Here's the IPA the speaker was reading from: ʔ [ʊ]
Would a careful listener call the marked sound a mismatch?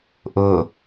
no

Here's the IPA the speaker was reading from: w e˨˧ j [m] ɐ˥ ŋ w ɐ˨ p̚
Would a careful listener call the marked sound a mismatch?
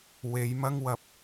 no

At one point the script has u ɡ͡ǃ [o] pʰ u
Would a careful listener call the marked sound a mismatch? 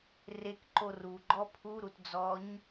yes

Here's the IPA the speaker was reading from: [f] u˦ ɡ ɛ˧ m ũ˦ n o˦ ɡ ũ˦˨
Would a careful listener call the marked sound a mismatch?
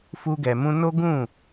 no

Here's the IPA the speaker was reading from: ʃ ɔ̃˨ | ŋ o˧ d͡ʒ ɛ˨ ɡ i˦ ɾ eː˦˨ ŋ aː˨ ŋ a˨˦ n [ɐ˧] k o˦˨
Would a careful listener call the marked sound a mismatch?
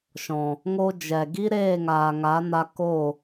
yes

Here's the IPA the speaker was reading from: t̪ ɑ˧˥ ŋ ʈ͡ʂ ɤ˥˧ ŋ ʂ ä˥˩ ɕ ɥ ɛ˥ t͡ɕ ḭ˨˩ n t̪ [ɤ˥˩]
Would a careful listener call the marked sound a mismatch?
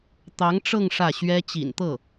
no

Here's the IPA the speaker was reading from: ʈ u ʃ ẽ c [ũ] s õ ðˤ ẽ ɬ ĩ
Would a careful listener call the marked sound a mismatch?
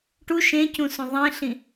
no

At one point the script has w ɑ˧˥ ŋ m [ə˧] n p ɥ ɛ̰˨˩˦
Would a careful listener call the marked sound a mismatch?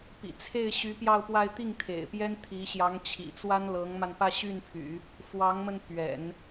no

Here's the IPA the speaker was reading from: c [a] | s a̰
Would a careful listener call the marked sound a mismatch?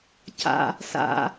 yes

